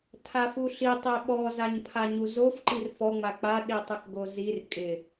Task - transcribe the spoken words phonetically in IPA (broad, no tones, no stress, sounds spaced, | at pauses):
tʰ a f u ɬ i tˤ e ɓ ɔ z a ɲ pʰ a ɲ u z o f ǃ i r f ɔ ŋ͡m a k͡p a ɗ i tˤ ɪ k ɡ o z i r kʼ ɪ